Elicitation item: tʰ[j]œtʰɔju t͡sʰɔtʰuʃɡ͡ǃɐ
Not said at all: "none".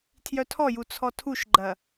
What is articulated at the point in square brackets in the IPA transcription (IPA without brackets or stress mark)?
j